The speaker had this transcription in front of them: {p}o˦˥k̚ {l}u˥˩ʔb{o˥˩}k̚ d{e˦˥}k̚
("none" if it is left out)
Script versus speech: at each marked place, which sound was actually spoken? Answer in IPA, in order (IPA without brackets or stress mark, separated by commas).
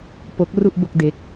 p, r, o˥˩, e˦˥